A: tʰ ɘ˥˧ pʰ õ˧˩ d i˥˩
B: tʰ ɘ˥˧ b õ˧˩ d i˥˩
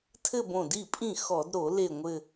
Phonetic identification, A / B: B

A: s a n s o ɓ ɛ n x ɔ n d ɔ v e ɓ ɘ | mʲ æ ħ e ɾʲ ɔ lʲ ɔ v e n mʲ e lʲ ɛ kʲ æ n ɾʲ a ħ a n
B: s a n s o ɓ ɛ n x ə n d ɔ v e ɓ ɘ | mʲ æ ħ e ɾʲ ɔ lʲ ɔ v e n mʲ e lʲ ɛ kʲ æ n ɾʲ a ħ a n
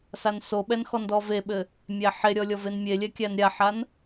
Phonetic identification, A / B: A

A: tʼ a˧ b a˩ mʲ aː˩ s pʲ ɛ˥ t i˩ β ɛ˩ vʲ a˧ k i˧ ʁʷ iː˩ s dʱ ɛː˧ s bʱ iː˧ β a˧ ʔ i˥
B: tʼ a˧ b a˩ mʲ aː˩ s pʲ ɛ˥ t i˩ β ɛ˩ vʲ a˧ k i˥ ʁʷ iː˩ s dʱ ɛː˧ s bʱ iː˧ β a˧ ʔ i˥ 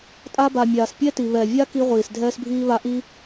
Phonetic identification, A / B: A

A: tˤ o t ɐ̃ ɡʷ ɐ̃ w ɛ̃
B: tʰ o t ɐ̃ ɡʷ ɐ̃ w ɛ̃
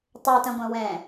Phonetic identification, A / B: A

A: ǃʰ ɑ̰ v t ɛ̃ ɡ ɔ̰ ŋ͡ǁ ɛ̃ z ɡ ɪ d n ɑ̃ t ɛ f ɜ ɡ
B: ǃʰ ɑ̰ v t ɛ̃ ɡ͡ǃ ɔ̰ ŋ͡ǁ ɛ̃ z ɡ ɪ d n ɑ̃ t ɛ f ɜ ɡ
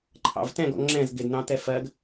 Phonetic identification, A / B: A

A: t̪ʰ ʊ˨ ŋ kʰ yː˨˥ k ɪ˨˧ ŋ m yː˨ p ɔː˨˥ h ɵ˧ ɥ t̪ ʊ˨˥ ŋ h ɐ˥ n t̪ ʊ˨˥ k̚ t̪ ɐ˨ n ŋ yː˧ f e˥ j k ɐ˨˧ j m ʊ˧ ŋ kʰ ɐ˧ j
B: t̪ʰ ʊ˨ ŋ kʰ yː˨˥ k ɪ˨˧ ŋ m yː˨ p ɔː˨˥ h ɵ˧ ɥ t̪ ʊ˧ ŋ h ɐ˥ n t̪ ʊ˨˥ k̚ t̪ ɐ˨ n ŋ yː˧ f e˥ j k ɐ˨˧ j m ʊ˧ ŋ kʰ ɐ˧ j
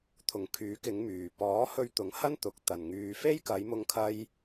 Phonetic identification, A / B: A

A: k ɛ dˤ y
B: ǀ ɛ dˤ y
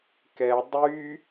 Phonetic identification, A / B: A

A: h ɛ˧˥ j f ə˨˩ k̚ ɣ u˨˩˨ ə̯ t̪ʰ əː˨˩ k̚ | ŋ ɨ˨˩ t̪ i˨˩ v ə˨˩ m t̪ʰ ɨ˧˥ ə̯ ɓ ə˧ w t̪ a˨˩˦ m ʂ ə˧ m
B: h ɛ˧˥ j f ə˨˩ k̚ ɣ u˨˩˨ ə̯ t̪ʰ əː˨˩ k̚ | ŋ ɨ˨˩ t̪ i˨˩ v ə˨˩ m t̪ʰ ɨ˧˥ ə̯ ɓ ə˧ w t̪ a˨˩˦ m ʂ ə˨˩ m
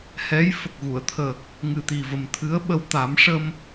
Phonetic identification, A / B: A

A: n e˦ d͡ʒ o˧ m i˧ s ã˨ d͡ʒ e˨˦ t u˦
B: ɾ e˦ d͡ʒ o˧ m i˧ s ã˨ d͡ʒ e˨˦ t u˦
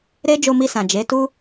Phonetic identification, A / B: B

